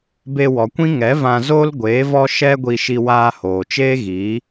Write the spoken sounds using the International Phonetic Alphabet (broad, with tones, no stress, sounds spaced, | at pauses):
b e˧ w ɔ˨ kʷ ĩ˦ ŋ ɛ˨˦ v ã˧ z oː˦ l ɡʷ eː˨˦ v ɔ˦ ʃ ɛ˦ ɡʷ i˧ ʃ i˧ w aː˧ h oː˨ t͡ʃ eː˦ ɣ iː˨˦